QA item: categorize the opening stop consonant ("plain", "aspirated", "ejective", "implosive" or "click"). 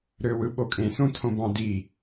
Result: implosive